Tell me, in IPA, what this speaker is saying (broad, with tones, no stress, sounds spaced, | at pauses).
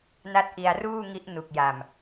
n a˥˩ t̚ ʔ i˧ a̯ r uː˥˩ ŋ i˦˥ ʔ n u˨˩ k̚ j a˨˩ m